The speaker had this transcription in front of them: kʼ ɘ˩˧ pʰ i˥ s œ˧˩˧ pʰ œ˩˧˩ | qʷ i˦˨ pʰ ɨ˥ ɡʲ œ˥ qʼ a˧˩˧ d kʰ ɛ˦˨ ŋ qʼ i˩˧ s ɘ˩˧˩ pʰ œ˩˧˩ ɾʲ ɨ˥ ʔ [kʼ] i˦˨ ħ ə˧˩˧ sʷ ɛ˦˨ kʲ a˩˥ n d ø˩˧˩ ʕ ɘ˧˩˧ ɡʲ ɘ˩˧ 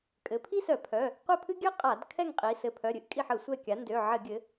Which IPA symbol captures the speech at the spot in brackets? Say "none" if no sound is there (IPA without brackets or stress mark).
kʼ